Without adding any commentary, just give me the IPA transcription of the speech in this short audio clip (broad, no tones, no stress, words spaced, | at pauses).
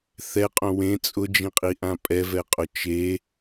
θɛqʼõ wẽ t͡sʼʊd͡ʒĩqʼiʔã pʼɛvɛqʼʊ t͡ʃe